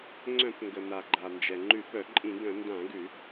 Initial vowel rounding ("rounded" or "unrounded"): rounded